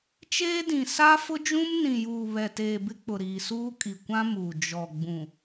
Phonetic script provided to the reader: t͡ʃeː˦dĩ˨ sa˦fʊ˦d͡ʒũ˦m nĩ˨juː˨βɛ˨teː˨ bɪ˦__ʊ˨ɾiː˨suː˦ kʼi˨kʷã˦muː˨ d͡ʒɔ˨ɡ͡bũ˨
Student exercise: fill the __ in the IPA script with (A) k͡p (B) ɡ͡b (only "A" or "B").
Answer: A